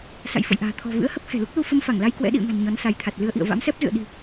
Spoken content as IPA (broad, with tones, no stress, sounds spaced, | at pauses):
s a̰˧˨ j f ə̰˧˨ j ʔ a̤ː˨˩ t̪ʰ ɔ̤˨˩ v ɨ̰˧˥ ə̯ h ə˦˥ p̚ h ɛ̤˨˩ l u˦˥ k̚ l u˧ f ə˧ m f a˧˩ ŋ l a˧ j k w ɛ̰˧˥ ɗ ḭ˧˨ ə̯ ŋ a̤˨˩ n ɲ ɔ˨˦ n s a˨˦ j t̪ʰ a˨˩ t̚ l ɨ˧ ə̯ ʔ ḭ˧˨ ə̯ v a̰˧˥ m s ɛ˦˥ p̚ z ɨ̰˧˨ ə̯ ɗ i̤˨˩